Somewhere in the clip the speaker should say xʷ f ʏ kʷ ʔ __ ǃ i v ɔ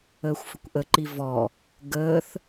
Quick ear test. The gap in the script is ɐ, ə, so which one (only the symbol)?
ə